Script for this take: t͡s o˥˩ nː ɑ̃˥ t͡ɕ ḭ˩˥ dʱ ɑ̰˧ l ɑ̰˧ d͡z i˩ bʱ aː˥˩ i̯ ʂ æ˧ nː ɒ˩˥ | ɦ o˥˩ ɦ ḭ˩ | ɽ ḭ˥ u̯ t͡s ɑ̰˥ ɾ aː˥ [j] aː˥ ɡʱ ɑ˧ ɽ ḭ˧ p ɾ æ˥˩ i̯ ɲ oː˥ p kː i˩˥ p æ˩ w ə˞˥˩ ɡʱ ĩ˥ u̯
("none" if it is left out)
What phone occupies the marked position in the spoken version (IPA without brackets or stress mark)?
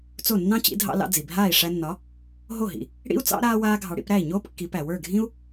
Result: w